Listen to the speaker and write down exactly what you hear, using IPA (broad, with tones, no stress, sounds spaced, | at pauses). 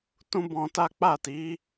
t ũ˦ b ɔ̃˧ t a˦ k͡p a˦˨ t i˨˦